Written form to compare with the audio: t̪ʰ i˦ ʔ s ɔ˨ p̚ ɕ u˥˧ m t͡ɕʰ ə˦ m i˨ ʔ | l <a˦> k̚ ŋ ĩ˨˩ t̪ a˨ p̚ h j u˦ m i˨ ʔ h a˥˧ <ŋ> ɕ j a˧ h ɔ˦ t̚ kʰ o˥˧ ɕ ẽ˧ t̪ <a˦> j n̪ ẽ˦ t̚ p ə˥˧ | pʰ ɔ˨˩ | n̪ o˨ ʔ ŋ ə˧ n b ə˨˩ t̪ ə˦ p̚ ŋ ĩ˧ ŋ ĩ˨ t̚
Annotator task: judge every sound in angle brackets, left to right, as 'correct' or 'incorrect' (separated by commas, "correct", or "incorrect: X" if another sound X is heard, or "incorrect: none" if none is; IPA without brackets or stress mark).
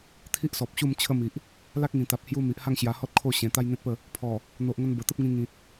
correct, correct, correct